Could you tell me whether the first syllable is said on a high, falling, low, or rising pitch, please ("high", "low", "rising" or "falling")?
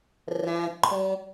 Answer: low